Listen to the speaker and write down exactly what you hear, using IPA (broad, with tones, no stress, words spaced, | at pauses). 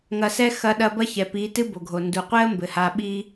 ŋɐ˨sɛ˧ xɐ˧ɗɐ˧bɐ˦ çɛ˨pi˨˦ tɨ˦bo˨ɡʱo˨ ndu˨qʷɛ˦ə̯ mbɘ˨ha˧ ɓi˦